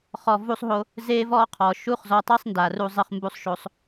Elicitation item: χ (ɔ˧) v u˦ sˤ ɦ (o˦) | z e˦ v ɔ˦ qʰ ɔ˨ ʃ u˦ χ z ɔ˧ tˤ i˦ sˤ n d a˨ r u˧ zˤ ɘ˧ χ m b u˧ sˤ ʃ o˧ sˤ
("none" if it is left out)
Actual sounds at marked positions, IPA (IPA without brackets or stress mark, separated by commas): ɔ˧, o˦